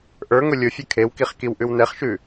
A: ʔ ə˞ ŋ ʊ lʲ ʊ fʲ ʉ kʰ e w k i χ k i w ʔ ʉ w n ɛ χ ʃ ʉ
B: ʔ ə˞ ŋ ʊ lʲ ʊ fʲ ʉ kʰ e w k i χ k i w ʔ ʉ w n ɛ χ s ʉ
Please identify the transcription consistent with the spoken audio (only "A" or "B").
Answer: A